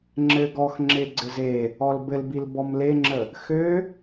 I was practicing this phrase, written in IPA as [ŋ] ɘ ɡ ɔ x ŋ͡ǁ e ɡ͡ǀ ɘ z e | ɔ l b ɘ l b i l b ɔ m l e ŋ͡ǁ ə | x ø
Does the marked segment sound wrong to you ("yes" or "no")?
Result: yes